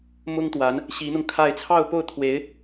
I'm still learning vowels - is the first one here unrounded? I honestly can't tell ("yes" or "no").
no